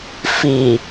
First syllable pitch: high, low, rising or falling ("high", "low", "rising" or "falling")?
low